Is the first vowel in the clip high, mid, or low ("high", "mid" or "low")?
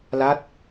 low